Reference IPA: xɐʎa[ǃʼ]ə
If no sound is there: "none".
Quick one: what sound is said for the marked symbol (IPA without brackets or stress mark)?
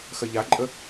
ǃʼ